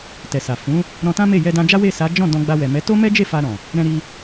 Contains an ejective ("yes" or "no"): no